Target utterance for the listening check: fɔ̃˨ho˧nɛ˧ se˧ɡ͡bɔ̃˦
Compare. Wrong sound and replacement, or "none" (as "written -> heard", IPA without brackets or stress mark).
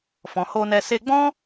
none